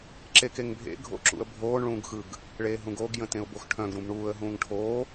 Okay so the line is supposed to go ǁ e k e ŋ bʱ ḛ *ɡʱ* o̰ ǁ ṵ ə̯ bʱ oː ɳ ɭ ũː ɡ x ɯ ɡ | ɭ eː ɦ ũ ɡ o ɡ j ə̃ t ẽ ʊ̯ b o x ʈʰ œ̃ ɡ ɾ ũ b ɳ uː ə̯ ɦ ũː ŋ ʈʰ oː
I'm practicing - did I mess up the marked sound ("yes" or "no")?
no